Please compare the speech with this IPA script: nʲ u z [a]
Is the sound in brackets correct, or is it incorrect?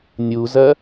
incorrect